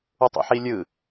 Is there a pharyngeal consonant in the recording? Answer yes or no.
yes